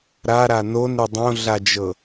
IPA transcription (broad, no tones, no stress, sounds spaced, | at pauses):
ɾ a ɾ a n o n ɾ ʏ dˤ õ ɮ a d͡ʒ ɤ